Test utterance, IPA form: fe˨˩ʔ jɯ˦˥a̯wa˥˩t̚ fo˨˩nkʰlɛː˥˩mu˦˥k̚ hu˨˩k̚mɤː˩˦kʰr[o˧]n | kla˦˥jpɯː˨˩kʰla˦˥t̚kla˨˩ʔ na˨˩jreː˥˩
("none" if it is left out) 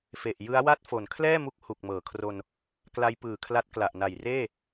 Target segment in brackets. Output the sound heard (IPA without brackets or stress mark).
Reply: o˧